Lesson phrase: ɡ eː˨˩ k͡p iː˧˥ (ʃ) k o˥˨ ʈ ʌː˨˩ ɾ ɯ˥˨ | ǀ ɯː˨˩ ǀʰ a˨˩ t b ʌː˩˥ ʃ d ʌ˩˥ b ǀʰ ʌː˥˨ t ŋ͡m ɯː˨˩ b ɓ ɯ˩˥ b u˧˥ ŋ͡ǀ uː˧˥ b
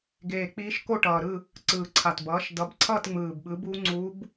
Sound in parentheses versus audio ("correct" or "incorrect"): correct